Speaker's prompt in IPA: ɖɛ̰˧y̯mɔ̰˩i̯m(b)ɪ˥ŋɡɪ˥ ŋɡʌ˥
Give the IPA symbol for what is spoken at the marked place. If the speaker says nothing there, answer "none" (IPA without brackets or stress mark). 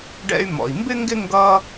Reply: b